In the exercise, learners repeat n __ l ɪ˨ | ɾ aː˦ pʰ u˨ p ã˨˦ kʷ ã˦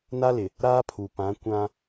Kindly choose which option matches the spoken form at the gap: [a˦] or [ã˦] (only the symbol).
a˦